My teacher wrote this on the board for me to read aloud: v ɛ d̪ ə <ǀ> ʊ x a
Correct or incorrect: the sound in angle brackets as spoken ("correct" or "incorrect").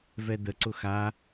correct